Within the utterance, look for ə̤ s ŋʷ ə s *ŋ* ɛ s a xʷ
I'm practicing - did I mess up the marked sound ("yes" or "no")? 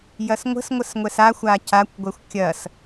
yes